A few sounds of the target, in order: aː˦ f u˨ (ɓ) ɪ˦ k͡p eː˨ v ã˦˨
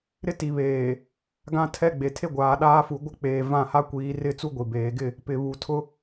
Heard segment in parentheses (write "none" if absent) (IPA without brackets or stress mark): ɡʷ